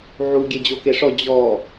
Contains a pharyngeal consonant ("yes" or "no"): yes